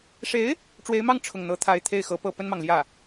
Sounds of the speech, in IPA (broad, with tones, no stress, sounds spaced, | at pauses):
ʂ e˧˥ ɪ̯ | ʈ͡ʂ w e˧˥ ɪ̯ m ɑ˥˧ ŋ ʈ͡ʂʰ ʊ˥˩ ŋ n̪ ɤ˧˥ t̪ʰ a˧˥ ɪ̯ t̪ʰ e˥˩ ɪ̯ x ɤ˧˥ p ɤ˥˩ p ə˥ n m ɑ˨ ŋ l j ä˥˩